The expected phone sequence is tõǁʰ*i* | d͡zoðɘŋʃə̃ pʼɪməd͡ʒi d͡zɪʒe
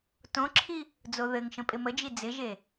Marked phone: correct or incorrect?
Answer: correct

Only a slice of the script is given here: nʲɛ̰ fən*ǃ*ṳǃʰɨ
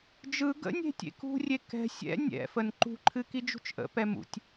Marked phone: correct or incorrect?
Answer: correct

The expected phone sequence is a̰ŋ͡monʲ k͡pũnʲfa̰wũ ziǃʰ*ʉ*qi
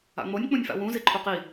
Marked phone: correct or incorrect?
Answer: incorrect: u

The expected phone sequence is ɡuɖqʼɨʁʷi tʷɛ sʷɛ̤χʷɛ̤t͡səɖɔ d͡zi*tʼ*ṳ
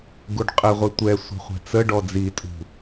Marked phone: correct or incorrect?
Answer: correct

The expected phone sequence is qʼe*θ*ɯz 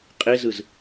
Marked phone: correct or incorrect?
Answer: incorrect: z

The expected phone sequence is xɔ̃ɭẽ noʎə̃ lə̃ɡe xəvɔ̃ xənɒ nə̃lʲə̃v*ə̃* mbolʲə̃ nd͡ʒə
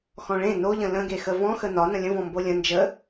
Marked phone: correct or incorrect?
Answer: incorrect: ɔ̃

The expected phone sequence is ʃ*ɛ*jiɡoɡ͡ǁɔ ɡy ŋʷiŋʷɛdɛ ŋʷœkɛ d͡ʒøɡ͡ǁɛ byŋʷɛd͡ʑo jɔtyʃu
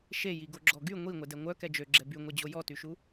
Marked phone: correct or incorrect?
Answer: incorrect: e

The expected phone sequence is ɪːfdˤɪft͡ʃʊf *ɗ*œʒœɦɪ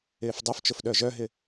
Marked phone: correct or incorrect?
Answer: correct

